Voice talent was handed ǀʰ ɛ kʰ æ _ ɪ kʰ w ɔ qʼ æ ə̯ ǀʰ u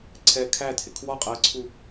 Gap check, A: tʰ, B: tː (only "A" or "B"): A